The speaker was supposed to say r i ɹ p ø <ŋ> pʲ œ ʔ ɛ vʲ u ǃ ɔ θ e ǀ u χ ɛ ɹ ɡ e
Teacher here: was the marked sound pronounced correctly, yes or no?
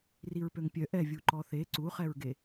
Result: yes